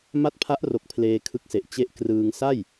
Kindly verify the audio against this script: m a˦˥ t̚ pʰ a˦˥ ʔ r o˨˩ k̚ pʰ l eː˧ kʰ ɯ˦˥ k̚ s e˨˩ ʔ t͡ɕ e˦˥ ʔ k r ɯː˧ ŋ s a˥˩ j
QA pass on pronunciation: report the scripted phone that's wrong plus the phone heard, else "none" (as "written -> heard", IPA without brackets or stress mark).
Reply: none